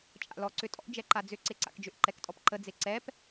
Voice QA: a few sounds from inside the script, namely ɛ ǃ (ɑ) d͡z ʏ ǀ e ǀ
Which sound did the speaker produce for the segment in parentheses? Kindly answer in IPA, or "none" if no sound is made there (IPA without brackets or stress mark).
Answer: a